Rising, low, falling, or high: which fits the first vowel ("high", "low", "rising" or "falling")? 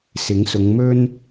rising